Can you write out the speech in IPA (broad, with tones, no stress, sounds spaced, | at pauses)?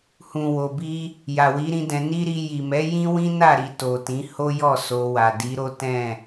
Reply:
h ũ˨ w o˨ b i˧ | j a˨ w i˨˦ ɾ ĩ˦ d ɛ̃˧ n i˦ ɾ i˧ j i˨ m ɛ˨˦ j ĩ˦ w ĩ˦ n a˦˨ ɾ i˨ t o˨ t ĩ˨˦ h o˦ j ɔ˦˨ s o˧ w a˨ d i˨˦ ɾ o˦ t ɛ̃˦˨